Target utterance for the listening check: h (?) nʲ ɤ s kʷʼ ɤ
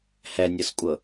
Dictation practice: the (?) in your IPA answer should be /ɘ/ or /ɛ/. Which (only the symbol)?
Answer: ɛ